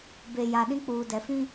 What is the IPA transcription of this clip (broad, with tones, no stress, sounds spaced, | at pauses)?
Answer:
b e˨ j a˨ ɗ ĩ˦ k͡p uː˨ d ɛ˨ f ĩ˦